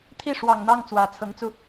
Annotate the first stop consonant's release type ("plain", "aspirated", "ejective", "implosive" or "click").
aspirated